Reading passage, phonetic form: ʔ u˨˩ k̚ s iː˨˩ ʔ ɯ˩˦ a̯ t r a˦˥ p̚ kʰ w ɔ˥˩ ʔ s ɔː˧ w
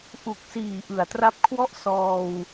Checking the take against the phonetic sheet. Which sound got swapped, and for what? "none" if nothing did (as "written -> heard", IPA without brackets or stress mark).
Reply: none